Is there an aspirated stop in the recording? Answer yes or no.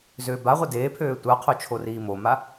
yes